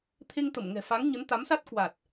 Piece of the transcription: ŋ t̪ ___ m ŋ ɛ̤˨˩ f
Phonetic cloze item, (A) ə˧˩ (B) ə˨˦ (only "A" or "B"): A